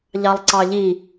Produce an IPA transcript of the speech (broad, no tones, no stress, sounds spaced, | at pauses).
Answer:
ʎ ɑ lˠ ǀ ɑ ʎ i